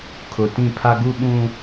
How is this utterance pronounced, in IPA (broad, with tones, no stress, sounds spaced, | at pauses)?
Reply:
kʰ ʊ˨ t ĩ˦˨ pʰ a˦ ɡ u˦ ɓ ũ˦